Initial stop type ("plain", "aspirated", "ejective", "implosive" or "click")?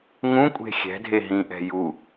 ejective